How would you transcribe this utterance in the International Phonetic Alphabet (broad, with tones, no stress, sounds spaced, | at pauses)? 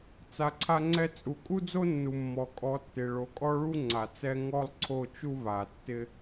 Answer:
t͡s a˨ ǀʰ a˧ ŋ͡ǀ ɛ˧ t͡sʼ u˨ kʼ u˦ d͡z o˦ nː u˨ mː ɔ˨ kʼ ɔ˨˦ tː ɪ˨ ɭ o˨ kʼ ɔ˦ ɭ u˦ ŋ͡ǀ a˨ t͡s ɛ˦ ŋ ɔ˦ lˠ ǀʰ o˦˨ t͡ʃ u˦ β a˨ tː ɪ˦